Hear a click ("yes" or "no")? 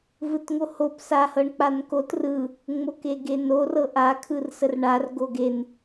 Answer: no